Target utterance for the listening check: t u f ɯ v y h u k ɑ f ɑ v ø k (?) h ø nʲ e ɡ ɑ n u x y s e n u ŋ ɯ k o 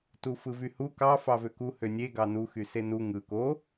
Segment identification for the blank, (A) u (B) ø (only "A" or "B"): A